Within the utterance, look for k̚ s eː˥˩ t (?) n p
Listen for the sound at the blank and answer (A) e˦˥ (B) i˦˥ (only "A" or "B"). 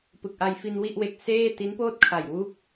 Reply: B